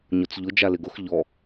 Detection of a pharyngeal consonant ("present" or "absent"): absent